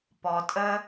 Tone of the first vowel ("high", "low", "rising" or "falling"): low